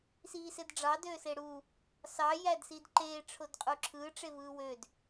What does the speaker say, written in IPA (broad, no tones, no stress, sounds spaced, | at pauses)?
s iː s e d ɖ͡ʐ ɑ d øː s e ɽ u | s ɑ j æ d s i d ǃ eː ʈ͡ʂʰ o d qʼ u ǁʰ ɯː ʈ͡ʂ e v ɯː w ø d